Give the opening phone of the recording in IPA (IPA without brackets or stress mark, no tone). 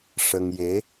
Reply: ʂ